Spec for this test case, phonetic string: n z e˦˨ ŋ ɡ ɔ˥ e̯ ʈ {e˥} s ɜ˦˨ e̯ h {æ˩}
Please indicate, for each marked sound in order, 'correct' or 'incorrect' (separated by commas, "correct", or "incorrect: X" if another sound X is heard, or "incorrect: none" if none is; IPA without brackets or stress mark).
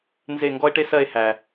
correct, correct